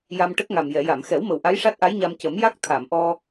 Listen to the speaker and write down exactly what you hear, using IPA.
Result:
j a˧ m ʈ ə˦˥ k̚ ŋ a˨˩ m j ɛ˨˩˨ j a˨˩˨ m x ɛ˨˩˦ w m ə˨˩ w ʔ a˧˥ j ʂ a˦˥ t̚ ʔ a˧˥ j ɲ a˧ m c ə˨˩˦ m j a˦˥ k̚ t̪ʰ a˨˩˨ m ʔ ɔ˧

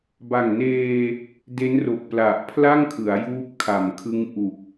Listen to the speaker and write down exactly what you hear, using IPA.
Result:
b a˨˩ ŋ n eː˧ | d e˦˥ n r o˨˩ k̚ p l a˨˩ ʔ pʰ l a˥˩ ŋ kʰ ɯ˩˦ a̯ j uː˦˥ p̚ kʰ a˨˩ m kʰ ɯ˦˥ ŋ ʔ u˨˩ k̚

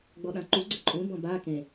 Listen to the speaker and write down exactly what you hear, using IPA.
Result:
ɡ͡b ɔ ɗ ã ǃ u ɡ͡ǀ ə ǃʼ ũ b ɔ̃ b a k ẽ

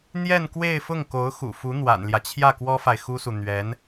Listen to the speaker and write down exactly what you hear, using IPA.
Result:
n̪ j ɛ˥˧ n k w e˥˧ ɪ̯ f ʊ˥˩ ŋ k o˧˥ ʊ̯ x ṵ˨˩ f u˧˥ n̪ w a̰˨˩ n l j ä˦ t͡ɕʰ j ä˥˩ k w ɔ˥ f a˨ ɪ̯ x u˥ s u˨ n̪ ɥ ɛ˧˥ n

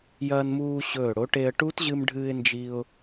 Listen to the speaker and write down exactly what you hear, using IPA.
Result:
j ɐː˧ n m uː˧ ɕ ɵː˧˩ ɽ o˨˥ ʈ e˧ ə̯ ʈ u˦˥ t ʑ ɨ˧ m ɖʱ ɨː˧ ɪ̯ n d͡ʒ i˧ ʊ̯

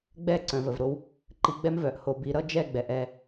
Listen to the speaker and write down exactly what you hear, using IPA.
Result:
ɡ͡b ɛ˦˨ ǀ œ̃˨ v ə˨ v ɾ o˦ w | ǃ i˧ ɡ͡b ɛ˦ m v œ˨ ʔ h o˧ b i˧ ɾ ʌ˦ d͡ʒ ɛ˦˨ ɡ͡b ɛ˨ ʔ ɛ˦˨

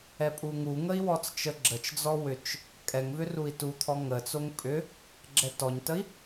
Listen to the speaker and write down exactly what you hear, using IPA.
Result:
ɛ pʼ u ŋ u ŋ ə i̯ w ɔ t͡s t͡ʃ ə ɡ͡ǁ ə t͡ʃ d͡z ɔ w ʏ t͡ʃ | kʼ ɛ ŋ v ʏ r u i̯ t u t̪ʰ ɔ ŋ ə t͡s o ŋ pʼ ʏ | ɡ͡ǁ ɛ t ɔ ɲ t ə i̯

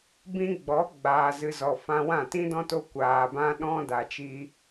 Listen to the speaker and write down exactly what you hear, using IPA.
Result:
b ĩ˧ ɡ͡b ɔ˨˦ ɡ͡b aː˨ z ɨ˨ z ɔ˨ f ã˧ w ã˦˨ t ĩ˦ d ɔ̃˦ t o˦ kʷ aː˧ b ã˦ ɗ ɔ̃˦ d a˧ t͡ʃ iː˦

